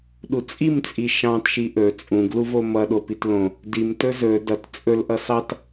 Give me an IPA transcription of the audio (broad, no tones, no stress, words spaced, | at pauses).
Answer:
ɗut͡sʼimt͡sʼi ʃɑ̃tʃi ʔɵ t͡sʼũɡluvo mʌ ɗopitlõ | dim tɵzɵ dʌt t͡sʼɵlʔʌ sɑt